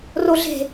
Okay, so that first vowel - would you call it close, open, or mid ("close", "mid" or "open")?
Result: mid